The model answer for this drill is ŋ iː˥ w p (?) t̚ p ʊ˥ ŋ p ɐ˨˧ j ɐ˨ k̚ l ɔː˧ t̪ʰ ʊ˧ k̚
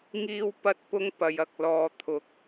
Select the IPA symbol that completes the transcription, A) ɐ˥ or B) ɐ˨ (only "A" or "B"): A